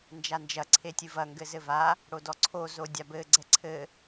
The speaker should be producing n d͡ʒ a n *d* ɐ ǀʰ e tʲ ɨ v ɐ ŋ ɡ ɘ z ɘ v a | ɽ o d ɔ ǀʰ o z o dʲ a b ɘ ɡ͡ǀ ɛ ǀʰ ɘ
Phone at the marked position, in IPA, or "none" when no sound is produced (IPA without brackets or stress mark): d͡ʒ